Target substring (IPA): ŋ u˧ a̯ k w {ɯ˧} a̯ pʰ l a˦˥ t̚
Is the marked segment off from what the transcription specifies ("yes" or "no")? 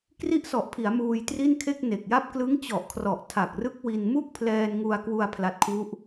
yes